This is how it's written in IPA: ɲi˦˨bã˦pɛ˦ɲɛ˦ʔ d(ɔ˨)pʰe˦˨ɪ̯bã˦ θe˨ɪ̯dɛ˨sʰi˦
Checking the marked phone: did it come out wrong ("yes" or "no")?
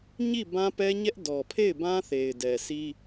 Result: no